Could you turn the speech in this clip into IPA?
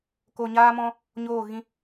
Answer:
k o˧ ɲ aː˦ m ɔ̃˦ | ɲ oː˦˨ ɣ ĩ˦

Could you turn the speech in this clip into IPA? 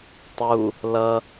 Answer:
tˤ u | l ʌ

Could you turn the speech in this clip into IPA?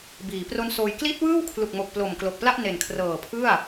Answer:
b iː˩˦ p r o˦˥ n s oː˧ j k l i˦˥ t̚ w ɯː˥˩ w kʰ l u˨˩ k̚ m o˨˩ k̚ p l o˨˩ m k l o˨˩ k̚ p l a˥˩ ʔ n e˨˩ n kʰ r ɤː˨˩ pʰ ɯ˥˩ a̯

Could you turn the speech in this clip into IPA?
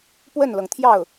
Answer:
p w ə˥˩ n l ɤ˩ ŋ t̪ʰ j ɑ˥˩ ʊ̯

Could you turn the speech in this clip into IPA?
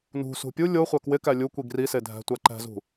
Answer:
n ṳ s ṳ pʲ u lʲ o χʷ æ k w ɪ k æ lʲ u kʷ i ɡ r i s e dʱ æ̤ tʷ æ ǃ æ̤ z ṳ

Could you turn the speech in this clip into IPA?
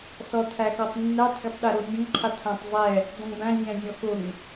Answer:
s ɔ tʰ æ x ɔ tˤ nː æ tˤ ɡ ʊ tˤ ɗ ɛ ɾ o nʲ ə̃ ŋ qʰ ə tʰ ã tˤ zˤ ɛ | dˤ ə̃ ŋ b æ̃ zʲ æ̃ zʲ ɔ x ʊ ŋ

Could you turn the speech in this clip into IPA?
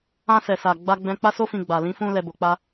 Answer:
ã˧ s ɛ˨ s a˨ ɡ͡b a˧ ɡ͡b ɛ̃˧ k͡p a˦ s o˦ f ĩ˧ ɡ͡b a˨ l ĩ˨˦ f ũ˧ l ɛ˨ b o˨ k͡p a˧

